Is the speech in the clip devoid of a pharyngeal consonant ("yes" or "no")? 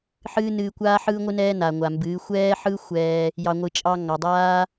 no